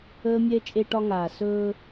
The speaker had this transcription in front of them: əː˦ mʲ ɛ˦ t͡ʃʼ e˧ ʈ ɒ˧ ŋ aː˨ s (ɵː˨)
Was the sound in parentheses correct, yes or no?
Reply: no